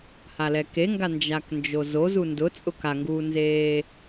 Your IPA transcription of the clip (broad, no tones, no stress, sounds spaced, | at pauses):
h a l ɛ k e ŋ ɡ a n d͡ʒ a k n d͡ʒ o z o z u n d ʊ t͡sʼ ʊ k a ŋ ɡ uː n z eː